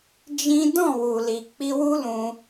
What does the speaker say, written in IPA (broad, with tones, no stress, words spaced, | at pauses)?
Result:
d͡ʒĩ˦ dɔ̃˦˨wu˨li˨ k͡pi˧wu˦lũ˧